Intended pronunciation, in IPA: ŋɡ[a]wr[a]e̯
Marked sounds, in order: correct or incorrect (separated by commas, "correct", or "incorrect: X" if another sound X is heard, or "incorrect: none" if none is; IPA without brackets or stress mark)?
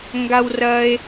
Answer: correct, incorrect: ɐ